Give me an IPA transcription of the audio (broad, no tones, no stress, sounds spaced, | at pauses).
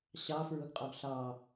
ɕ ɑ f ɹ ʊ ɡ qʼ ɔ ɡ ɬ ɑ